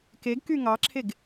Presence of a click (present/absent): present